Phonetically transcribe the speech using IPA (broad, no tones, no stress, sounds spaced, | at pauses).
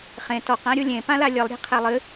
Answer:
χ ẽ t ɔ q ã ɾʲ u lʲ ẽ p ã l a lʲ ɨ lˠ ɾʲ e̤ qʰ ɛ lˠ ɨ